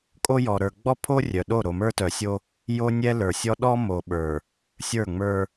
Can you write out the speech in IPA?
kʼ o˦ j ɔ˨ ɾ ə˞˨ ɡ͡b ɔ˦ pʰ o˦ rʲ œ˨ ɗ o˦˨ ɾ o˨ m ə˞˦ t œ˨ sʲ o˦ | j o˦ nʲ ɛ˦ l ə˞˨ sʲ ɔ˦ ɗ ɔ˦ m o˨ ɓ ə˞˨ | sʲ ə˞˦˨ ŋ͡m ə˞˦

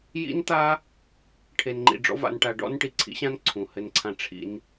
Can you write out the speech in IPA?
j ḭ˥ n t̪ a˥ | ʈʰ e˧ n ŋ͡ǃ ḭ˧ ɖ͡ʐ ɔ̰˥ v a̰˧ n ʈ a˧ ɖ ɔ̰˥ n ʈ i˩ ǀʰ ḭ˥ ɕ ã˥ n ǀʰ ũ˩ h ɘ˧ n ǀʰ ã˧ ʈ͡ʂʰ ḭ˧ n

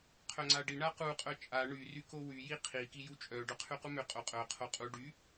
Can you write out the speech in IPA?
qʰ œ ŋ͡ǀ a ɖ i ɳ a q u qʼ œ t͡ʃʼ a ɳ y r y k o w y j i qʰ i k i j u t͡ʃʼ œ ɖ œ qʰ y q u m ø qʼ o qʼ œ qʰ o qʼ u ɖ y

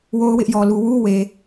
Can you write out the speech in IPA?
w o˦ ʊ̯ w ɪ˦ ʔ j ɔ˨ l u˨ w u˦ w e˨

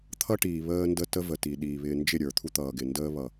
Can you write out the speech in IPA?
t̪ʰ ʌ˦ ʈ iː˨ β əː˦ n d ə˦ t ə˦ v ə˨ t i˨ ɗ iː˨ β ɪː˨ n d͡ʒ ɪ˦˨ ɾʲ ə˞˨ t̪ʰ u˦ t̪ ʌː˨ ɡ ɪ˨ n d əː˦ β ʌ˨

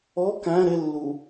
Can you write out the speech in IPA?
ɔ k æ̃ ɾ ɪ lː u

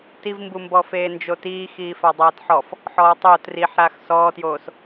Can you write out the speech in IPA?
t i v m b u m b ɔ f eː n d͡ʒ o t iː x iː f a dˤ aː t ħ ɔ f | ħ ɔː tˤ o t r i ħ ɾ aː x s ɔː t j oː s

